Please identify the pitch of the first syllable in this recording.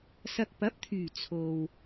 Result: low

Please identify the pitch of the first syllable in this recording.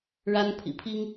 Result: high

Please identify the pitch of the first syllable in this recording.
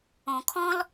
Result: low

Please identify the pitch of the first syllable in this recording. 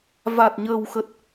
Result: low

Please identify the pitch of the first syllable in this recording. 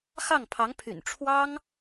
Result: falling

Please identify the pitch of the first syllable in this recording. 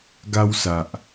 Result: high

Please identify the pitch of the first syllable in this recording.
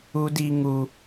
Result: high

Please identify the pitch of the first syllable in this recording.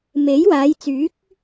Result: rising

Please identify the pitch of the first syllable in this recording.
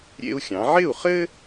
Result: high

